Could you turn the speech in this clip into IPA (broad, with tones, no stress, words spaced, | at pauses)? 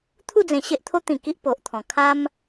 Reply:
t̪ʰu˥˧d͡zẽ˨˩ ɕe˦ʔt̪ʰo˦ t̪ĩ˨˩ ki˦ʔpo˨ʔt̪ʰɔ̃˨˩ kʰa˦m